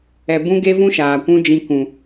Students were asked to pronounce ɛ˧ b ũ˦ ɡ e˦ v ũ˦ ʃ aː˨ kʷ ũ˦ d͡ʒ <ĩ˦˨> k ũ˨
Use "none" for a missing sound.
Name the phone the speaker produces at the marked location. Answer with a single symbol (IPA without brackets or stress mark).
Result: ĩ˧